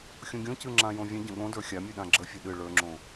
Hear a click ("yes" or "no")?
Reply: yes